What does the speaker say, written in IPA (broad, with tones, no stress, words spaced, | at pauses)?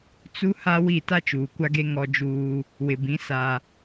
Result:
t͡su˦ha˦wi˦˨ ta˦t͡ʃuː˨kʷa˦ɡe˦ ŋɔ˦d͡ʒuː˦ | wɪ˨bĩ˨˦ sa˦